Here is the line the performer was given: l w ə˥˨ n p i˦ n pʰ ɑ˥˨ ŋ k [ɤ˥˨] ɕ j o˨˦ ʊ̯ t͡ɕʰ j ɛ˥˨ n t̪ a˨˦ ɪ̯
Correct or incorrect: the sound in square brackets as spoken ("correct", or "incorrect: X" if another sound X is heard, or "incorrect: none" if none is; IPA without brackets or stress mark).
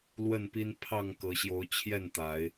incorrect: ɤ˨˦